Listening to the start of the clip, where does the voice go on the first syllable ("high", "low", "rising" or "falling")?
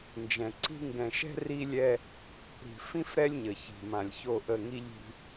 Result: low